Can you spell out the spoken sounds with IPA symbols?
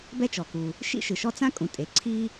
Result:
bɛ˥t͡ʃɔ˩ku˩ | ʃḭ˥ʃɯ˩ʃɔ˥ t͡sã˥kʼũ˩ tʼe˩ ǀʰi˥

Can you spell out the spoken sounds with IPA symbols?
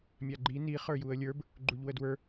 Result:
mʲaɡ͡ǃi ni χə˞juə̯lʲə˞b | ɡ͡ǃuʎwədwə˞

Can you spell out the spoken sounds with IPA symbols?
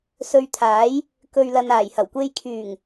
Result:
sɵ˧ɥt̪ʰaː˨˥j | kɵ˨ɥlɐ˨naː˨˩j hɐ˨˩wkʷe˧jkʰyː˨˩ŋ

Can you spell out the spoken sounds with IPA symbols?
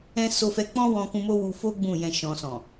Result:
ɛ̃˦ so˧fɛ˧ k͡pɔ̃˦wɔ̃˧kũ˧ mo˦wu˧fo˦ ɡ͡bũ˦˨jɛ̃˧ ʃɔ̃˨sɔ̃˨

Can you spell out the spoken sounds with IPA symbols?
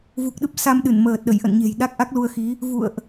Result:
vu˨˩k̚ɗɨ˦˥p̚ sa˧mɗɨ˧˩n məː˨˩t̚ɗə˧˩jʔə̰˧˨nɲe̤˨˩j ɗa˦˥k̚ʔa˦˥k̚lu˧ə̯xi˨˦ | vṵ˧˨ə̯ʔ

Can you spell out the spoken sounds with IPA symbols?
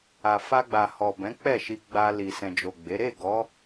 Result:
a˨ fa˧ɡ͡ba˨hɔ˨bɛ̃˨˦ k͡pɛ˦˨ʃi˧ɡ͡ba˧ li˨sɛ̃˨d͡ʒo˨ɡ͡be˨˦ ɾe˦˨ɡɔ˨˦

